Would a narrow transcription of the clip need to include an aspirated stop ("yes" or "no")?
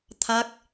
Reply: yes